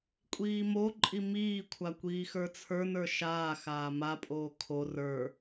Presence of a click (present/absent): present